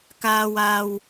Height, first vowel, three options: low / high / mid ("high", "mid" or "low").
low